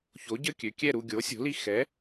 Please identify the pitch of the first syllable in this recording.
rising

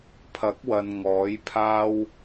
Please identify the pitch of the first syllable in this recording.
rising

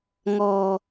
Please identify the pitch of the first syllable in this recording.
low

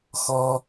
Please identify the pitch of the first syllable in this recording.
high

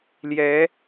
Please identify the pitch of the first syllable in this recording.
rising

